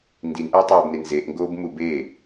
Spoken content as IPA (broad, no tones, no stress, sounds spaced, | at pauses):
n d i n ʔ æ tˤ oː b n e n z e ʔ ŋ ɡ oː b m u b e